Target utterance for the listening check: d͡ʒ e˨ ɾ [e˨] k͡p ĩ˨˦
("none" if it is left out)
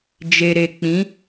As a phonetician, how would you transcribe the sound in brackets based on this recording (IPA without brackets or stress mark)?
e˨